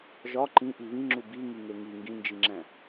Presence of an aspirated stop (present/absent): absent